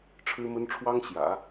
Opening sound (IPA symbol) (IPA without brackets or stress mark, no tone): ʈ͡ʂʰ